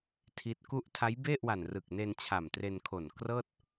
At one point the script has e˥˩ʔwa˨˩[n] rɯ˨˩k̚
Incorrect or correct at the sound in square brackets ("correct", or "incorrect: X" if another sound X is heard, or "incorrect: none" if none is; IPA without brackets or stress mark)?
correct